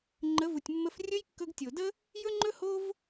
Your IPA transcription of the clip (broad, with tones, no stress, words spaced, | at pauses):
ŋ͡ǃə˨˦vu˨tʲmːə˧f rʲɵ˦jkːɵ˧ɡtʲo˨də˦ | jɵ˦ŋ͡ǃɵ˦ ho˦v